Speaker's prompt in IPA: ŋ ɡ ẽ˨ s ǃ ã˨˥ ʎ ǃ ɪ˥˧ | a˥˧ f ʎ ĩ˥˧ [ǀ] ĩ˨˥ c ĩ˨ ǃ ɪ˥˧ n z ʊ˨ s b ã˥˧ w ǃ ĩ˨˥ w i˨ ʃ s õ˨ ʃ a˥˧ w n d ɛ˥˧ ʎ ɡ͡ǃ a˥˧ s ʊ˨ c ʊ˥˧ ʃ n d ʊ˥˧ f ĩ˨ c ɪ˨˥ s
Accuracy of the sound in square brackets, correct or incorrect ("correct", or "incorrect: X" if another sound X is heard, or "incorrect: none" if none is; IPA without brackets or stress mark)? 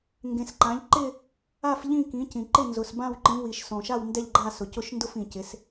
incorrect: k